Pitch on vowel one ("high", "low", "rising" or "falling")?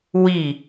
falling